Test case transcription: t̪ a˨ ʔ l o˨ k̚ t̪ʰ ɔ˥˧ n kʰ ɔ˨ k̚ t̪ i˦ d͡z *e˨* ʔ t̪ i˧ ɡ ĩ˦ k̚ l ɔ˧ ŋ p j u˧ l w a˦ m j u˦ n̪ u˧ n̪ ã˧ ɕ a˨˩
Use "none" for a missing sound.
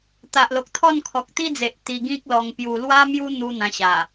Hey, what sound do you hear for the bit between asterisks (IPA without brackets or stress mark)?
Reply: e˨